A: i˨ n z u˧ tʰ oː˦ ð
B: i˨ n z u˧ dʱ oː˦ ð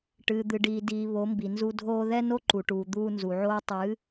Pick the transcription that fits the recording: B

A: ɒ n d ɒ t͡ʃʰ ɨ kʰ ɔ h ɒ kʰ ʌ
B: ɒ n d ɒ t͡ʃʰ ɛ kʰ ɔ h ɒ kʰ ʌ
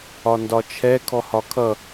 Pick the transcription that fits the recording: B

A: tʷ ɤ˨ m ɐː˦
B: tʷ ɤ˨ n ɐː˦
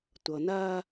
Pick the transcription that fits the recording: B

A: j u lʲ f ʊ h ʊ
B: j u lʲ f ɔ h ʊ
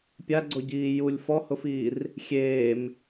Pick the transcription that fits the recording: B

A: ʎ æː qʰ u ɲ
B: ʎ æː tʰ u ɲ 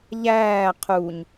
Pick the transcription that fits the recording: A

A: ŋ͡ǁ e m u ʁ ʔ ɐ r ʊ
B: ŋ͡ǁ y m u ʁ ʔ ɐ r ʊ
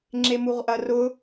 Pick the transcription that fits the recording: A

